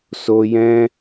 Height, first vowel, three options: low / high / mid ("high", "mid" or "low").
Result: mid